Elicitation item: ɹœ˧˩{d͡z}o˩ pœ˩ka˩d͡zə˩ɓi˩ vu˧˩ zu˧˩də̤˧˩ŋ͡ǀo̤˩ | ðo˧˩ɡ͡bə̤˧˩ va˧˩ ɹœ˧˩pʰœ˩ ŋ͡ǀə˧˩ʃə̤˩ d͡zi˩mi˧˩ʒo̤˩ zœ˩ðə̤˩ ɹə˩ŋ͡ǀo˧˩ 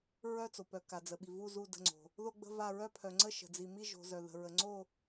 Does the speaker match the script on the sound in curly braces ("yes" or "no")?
no